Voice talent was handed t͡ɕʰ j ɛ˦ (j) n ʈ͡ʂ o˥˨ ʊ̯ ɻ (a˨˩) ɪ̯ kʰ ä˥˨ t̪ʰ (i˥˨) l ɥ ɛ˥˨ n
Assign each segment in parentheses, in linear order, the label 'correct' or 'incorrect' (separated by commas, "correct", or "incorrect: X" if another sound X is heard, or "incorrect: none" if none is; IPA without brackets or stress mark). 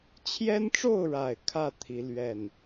incorrect: none, correct, incorrect: i˨˦